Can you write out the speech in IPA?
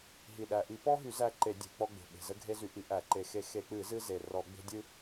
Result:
ɦ i˨˩ ɗ æ˨˩ ʔ i˧˩˧ p ɔ˦ ɦ y˧˩˧ z æ˦ ǃ e˧˩˧ dʲ e̤˧˩˧ k͡p ɔ˦ ɡ͡b e̤˨˩ ɓ e̤˨˩ z ə˦ ɡʱ e˦ z y˧˩˧ ʔ i˧˩˧ ʔ æ˧˩˧ ǃ e˨˩ x e˧˩˧ x e˧˩˧ k͡p ɨ˧˩˧ z ɨ˦ z e˨˩ r ɔ˧˩˧ ɡ͡b e̤˦ dʲ ɨ˦

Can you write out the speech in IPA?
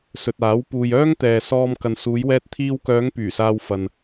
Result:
s ɵ˨ t̚ aː˨˥ w p uː˨ j œː˥ ŋ t̪ ɛː˨ s ɔː˧ m k ɐ˨ n s uː˨˧ j w ɛː˧ t̚ t̪ʰ iː˧ w k œː˨˧ ŋ p yː˨˩ s aː˧ w f ɐ˨ n

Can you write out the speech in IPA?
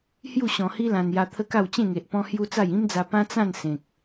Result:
h j u˥˧ ɕ ɔ̃˧ h i˦ l ã˧ n j a˧ t̪ʰ ə˦ k a˥˧ w t͡ɕ ẽ˥˧ ŋ e˨ ʔ p ɔ̃˦ h j u˦ t͡s a˥˧ j ĩ˦ m d͡z a˧ p ã˦ t͡s ã˥˧ n s ẽ˨ k̚

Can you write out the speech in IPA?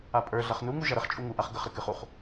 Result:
a pʼ ə˞ ɮ ɐ χ n u ŋ u ʒ ɐ ɾ ə χ t͡ʃʼ u ŋ u ʔ a χ ɡ ə χ ɾ ə k ɨ χ u χ

